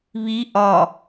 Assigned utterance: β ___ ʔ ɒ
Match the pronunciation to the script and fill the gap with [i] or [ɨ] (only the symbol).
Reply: i